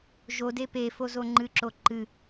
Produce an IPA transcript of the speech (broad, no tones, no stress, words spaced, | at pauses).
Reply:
ʒode pefozo ŋ͡ǃɨǁo ǃɨ